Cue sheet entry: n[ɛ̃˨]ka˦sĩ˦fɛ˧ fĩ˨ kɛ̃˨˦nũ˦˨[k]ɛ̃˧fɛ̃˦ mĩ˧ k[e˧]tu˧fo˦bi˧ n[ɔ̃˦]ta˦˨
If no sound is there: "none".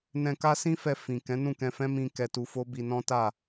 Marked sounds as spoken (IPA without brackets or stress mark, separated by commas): ɛ̃˧, k, ɛ˧, ɔ̃˦